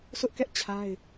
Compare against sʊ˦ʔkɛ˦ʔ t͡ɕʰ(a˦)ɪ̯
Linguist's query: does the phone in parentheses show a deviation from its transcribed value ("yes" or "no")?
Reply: no